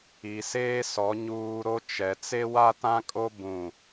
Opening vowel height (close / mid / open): close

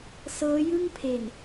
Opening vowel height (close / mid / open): mid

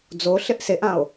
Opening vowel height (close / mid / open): mid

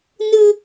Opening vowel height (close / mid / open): close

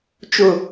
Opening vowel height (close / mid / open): close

